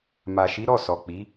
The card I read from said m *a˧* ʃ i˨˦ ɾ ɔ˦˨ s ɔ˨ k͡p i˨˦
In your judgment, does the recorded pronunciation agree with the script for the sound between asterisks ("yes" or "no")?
no